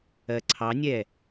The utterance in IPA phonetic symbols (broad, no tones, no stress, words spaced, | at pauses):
ɜǀʰɑnʲɛ